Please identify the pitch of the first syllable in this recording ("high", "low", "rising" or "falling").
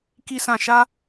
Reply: high